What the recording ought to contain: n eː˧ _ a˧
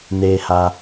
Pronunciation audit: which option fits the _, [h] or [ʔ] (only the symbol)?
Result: h